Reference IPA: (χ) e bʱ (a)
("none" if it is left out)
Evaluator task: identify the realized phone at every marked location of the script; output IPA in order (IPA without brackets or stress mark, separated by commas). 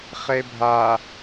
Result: χ, a